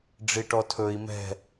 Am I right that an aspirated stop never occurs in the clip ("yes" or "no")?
no